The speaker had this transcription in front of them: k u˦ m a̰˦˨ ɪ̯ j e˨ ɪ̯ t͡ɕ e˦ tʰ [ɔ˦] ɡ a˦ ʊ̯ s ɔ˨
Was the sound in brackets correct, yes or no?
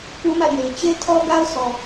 yes